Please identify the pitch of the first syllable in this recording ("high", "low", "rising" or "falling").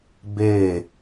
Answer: falling